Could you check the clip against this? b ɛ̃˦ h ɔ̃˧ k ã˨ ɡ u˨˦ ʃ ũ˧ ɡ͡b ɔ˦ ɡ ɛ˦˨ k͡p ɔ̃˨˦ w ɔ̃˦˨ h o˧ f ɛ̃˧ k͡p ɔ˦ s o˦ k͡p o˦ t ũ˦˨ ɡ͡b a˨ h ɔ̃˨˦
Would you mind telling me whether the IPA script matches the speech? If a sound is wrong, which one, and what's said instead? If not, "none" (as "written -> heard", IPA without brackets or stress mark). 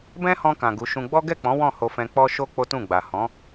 s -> ʃ